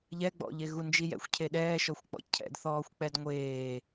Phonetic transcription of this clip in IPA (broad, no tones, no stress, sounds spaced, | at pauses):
ʎ ɛ ɡ͡b ɔ̰ ʎ e ɣ u n d͡ʒ i j ɛ̰ xʷ cʰ e ɗ ɛː ʃ ɔ xʷ k͡p ɔ̰ cʰ ɛ̰ d θ ɔː xʷ k͡p ɛ d ŋʷ eː